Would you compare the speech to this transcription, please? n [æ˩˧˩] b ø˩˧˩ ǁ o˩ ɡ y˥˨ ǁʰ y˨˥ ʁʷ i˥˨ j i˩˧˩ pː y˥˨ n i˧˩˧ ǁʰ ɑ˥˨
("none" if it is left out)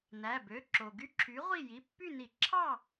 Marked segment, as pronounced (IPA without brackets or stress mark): æ˩˧˩